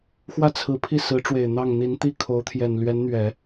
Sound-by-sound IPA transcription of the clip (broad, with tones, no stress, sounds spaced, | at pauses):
x w ä˥ t͡sʰ ɹ̩˧˥ pʰ i˥˩ s ɹ̩˧˥ ʈ͡ʂ w e˨˩ ɪ̯ n̪ ɑ˥˩ ŋ n̪ i˧˥ n t̪ i˥˩ kʰ o˧˥ ʊ̯ t̪ʰ j ɛ˨˩ n l ɥ ɛ˧˥ n n̪ ɥ ɛ˨˩˦